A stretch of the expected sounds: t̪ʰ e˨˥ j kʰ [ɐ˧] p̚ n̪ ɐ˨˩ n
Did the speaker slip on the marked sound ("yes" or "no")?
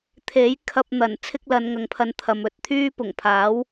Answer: no